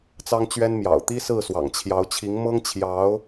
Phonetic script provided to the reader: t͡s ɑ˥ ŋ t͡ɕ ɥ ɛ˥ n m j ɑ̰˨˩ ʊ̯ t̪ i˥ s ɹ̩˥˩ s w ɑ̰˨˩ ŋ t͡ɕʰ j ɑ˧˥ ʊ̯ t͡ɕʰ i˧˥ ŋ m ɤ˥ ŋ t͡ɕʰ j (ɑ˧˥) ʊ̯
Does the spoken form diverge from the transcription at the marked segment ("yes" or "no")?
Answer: no